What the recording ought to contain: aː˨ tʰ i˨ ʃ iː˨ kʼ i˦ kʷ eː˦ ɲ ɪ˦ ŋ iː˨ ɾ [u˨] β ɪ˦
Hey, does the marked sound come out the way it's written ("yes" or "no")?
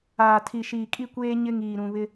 no